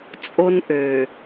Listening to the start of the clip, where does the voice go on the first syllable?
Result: high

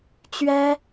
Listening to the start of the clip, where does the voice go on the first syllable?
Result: high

